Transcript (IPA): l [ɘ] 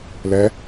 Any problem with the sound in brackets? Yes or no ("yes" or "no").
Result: yes